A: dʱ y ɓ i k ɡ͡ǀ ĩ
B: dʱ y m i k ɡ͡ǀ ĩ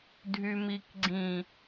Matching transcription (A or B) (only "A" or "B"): B